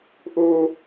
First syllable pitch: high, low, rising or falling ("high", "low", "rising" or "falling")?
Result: high